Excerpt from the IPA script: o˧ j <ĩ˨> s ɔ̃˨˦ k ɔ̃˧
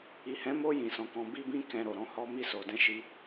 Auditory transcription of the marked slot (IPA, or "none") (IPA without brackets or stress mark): ĩ˨